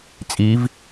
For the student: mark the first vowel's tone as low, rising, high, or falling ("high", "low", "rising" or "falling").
rising